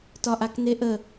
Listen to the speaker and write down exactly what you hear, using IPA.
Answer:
tɒʔakneʔə

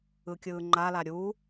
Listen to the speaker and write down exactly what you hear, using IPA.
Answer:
ɯkʲɯːŋ͡ǃala ɾʲu

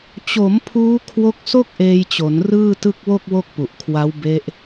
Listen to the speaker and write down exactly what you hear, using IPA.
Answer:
t͡ɕo˩˦m pʰuː˦˥kʰwo˦˥k̚so˥˩k̚ ʔeː˧jt͡ɕo˩˦n rɯː˥˩tɯ˥˩k̚ wo˥˩k̚wo˥˩k̚pu˨˩ʔkʰwa˦˥w be˦˥ʔ

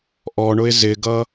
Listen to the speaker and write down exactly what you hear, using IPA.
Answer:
ʔɔɳʊɪ̯ zɪɡʌ

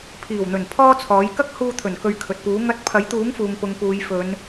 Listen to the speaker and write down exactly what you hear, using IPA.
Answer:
pʰiː˨˩wn̪ɵ˨˩n pʰɔː˥t͡sʰɔː˨˥j kɐ˥k̚ huː˧t̪ʰɵ˨˩n kɵ˧ɥkʰɵ˨t̚puː˨˥ ŋɐ˧t̚ pʰɐ˨˥jt̪uː˨˥ŋfuː˨ŋ pʊ˨ŋpuː˨˧j fɵ˨˧n

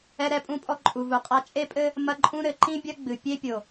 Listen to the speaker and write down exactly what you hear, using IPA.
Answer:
ɛ˦ɾɛ˦ pʼũ˦pʼɔ˦ ǃʼu˨vu˨qʼa˦ t͡ʃʼe˦pʼɘ˦ | mɐ˦ǃʼũ˦ ɾɘ˨ǃĩ˦bʲɐ˦ɡ͡bɨ˨ pʲe˦ pʲo˨

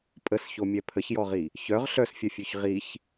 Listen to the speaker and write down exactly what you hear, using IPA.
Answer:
pʼəsçomʲɛ pʰəçjɔʁi | çœʁ ɬœsfʲœfʲøç ʁiç

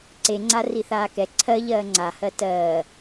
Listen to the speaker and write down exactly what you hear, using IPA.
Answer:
ǀeŋ͡ǀa riθaːkɛ ǀʰɜ ʎɜːŋ͡ǀahɜ tɜː

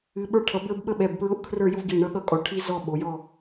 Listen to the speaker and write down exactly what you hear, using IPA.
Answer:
ɨ˩˧ɓə˞˦˨ʈʰʌ˩˧ bə˞˦bɓə˦ɓɛ˩˧˩bpɹʊ˦ʔ kʰrə˞˦˨jʊ˦vɡi˩˧˩ ɳʌ˦ɠʌ˦kʼɔ˩˧ ʈʰi˦zɔ˦˨ ɓo˩˧jɔ˦˨

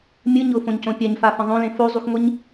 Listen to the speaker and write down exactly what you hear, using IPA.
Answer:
mʲɯɲʊːfõɲcõ pʲaɲfafə̃ ðˤõlẽ fozˤuxŋʷiɲ

